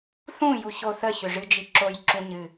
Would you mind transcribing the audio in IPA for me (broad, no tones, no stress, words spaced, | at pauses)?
θũ juço θə çʏʐɨd͡ʒiǁoj ǁũɲɨ